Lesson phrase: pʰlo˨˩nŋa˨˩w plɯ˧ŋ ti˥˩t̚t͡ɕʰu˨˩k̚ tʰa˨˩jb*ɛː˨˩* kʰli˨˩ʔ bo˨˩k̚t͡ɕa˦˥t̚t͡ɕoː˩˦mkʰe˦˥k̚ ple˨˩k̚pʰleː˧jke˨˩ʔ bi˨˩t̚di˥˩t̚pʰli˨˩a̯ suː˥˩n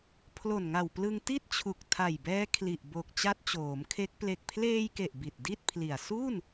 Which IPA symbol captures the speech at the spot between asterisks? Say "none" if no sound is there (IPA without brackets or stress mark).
ɛː˦˥